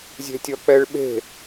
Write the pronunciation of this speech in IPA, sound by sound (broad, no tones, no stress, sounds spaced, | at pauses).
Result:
zʲ e̤ tʲ ʌ k͡p ɛ ɭ ɓ e̤